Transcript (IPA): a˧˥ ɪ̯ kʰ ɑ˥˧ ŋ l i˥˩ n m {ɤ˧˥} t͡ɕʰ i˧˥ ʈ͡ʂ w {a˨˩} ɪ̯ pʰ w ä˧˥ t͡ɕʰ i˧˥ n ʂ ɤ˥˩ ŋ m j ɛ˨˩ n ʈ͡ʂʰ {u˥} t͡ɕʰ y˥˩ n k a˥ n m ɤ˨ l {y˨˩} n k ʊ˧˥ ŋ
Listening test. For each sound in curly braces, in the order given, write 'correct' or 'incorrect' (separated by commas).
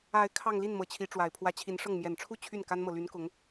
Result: correct, correct, incorrect, incorrect